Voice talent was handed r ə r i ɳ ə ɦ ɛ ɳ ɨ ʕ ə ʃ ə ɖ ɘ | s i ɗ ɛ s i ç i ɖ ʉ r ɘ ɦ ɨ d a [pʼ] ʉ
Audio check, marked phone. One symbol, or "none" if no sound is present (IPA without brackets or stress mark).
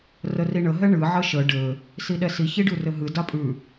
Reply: pʼ